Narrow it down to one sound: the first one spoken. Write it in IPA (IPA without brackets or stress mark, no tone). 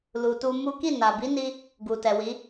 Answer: l